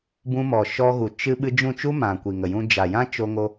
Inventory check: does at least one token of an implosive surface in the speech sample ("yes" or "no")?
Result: yes